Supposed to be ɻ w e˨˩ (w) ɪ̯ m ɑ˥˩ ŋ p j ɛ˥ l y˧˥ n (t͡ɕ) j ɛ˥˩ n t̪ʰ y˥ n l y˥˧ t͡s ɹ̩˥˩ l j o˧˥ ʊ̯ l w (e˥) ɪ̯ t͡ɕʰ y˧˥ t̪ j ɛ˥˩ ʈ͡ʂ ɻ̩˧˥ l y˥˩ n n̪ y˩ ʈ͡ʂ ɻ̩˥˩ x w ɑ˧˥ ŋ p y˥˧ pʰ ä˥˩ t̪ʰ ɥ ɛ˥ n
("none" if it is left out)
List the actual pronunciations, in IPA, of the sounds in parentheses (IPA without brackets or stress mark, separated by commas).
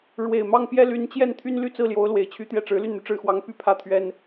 none, t͡ɕ, e˨˩